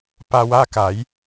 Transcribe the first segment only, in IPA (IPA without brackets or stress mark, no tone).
p